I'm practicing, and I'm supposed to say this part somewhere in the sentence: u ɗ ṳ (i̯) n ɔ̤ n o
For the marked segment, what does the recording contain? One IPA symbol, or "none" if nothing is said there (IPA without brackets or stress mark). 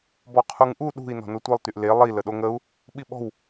i̯